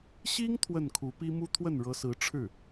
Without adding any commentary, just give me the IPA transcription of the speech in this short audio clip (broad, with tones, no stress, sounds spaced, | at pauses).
ɕ i˥ ŋ t̪ʰ w ə˥˩ n kʰ u˧˥ p i˥ m u˥ t̪ʰ w ə˥˩ n ɻ ɤ˧˥ s ɹ̩˧˥ ʈ͡ʂʰ ɻ̩˥˩